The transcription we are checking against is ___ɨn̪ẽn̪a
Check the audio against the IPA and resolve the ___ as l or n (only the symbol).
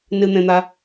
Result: n